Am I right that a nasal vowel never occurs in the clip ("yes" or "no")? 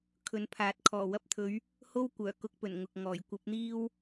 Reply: yes